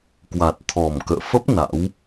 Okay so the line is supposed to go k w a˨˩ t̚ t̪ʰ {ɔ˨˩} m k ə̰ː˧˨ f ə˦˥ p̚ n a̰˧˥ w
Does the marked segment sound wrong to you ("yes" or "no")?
no